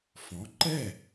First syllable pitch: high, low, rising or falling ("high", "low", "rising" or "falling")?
rising